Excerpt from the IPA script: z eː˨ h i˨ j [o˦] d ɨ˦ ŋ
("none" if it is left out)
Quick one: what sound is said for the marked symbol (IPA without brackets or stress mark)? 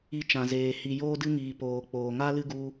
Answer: oː˦